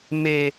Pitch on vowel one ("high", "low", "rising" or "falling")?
low